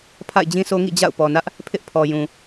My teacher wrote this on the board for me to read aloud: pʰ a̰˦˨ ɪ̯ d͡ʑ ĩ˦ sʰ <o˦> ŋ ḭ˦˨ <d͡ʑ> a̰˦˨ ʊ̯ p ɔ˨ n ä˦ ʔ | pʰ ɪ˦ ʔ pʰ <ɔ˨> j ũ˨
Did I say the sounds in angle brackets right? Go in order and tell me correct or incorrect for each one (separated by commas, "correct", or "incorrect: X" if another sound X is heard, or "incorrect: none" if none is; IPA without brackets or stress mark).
correct, correct, correct